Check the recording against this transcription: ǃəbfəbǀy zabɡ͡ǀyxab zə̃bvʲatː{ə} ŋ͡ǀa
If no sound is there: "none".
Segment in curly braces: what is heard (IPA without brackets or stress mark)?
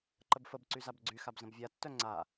œ